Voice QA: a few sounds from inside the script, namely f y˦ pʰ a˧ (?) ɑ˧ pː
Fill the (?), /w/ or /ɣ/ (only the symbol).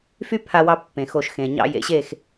w